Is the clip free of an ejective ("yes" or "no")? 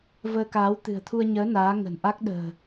yes